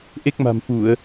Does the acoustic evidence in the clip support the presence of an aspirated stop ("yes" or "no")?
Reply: no